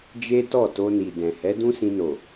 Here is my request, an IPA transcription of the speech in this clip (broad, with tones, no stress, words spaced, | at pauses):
d͡ʒe˦tɔ˦˨to˧ni˨ dɛ̃˨ hɛ˨˦dũ˦sĩ˧no˨